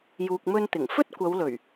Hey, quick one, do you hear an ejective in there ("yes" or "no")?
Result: no